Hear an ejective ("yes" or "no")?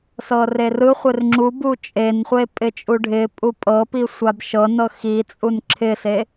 yes